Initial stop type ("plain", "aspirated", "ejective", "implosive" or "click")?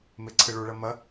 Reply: click